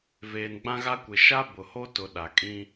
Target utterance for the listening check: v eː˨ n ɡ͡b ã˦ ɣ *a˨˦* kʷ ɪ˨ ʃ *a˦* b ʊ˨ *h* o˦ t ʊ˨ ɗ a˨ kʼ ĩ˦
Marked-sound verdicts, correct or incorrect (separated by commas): incorrect, correct, correct